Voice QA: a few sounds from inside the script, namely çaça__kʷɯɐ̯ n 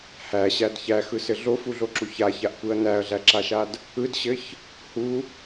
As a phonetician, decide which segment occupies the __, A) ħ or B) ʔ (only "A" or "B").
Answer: B